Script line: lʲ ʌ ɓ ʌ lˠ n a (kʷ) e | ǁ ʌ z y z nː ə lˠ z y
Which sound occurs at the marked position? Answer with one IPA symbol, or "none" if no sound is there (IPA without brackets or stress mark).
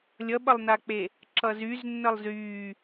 k͡p